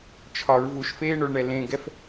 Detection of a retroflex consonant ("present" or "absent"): present